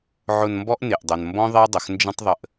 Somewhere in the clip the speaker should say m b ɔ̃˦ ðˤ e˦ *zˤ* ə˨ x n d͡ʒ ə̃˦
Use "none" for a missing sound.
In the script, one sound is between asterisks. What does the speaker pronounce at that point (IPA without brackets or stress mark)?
dˤ